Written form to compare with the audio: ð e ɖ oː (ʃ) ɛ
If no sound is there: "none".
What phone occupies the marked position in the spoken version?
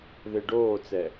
t͡s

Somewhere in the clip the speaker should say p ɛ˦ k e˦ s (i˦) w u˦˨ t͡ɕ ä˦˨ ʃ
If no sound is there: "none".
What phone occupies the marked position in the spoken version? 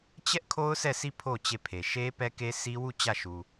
i˦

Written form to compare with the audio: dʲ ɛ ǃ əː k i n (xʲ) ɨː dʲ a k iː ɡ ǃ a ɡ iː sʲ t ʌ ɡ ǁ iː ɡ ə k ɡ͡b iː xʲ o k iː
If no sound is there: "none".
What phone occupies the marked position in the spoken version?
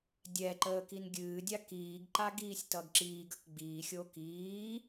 ɡʲ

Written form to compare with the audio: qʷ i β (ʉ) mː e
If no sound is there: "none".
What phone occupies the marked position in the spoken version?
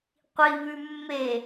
ʉ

